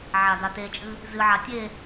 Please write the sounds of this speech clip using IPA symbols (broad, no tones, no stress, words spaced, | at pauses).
ʕadatet͡ʃʼɨ | zɨʕa tʲe